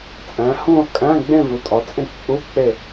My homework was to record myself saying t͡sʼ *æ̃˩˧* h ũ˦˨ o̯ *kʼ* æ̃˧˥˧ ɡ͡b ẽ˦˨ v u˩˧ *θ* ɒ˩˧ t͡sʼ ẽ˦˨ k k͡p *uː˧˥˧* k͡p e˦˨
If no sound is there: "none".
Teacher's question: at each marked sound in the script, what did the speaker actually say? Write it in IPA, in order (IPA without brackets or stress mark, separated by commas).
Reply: æ̃˩˧, kʼ, tʼ, u˧˥˧